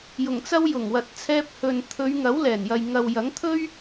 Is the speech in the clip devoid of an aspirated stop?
no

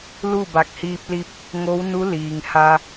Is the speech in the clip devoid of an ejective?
yes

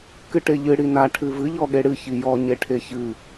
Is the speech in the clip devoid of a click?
yes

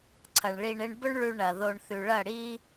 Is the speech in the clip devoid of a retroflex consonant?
no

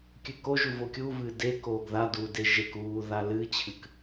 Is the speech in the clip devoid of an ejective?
yes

